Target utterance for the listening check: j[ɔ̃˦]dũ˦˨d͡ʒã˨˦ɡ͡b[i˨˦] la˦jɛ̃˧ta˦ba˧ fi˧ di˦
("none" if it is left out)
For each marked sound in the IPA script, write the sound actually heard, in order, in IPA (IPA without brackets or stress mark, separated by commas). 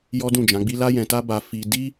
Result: ɔ˦, i˦